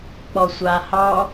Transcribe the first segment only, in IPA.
k͡p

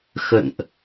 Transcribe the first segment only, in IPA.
x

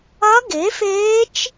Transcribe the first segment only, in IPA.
ɐ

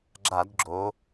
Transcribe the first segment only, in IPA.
ɡ͡ǁ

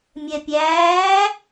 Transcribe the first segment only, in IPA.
mʲ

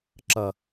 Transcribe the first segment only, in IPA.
ǁ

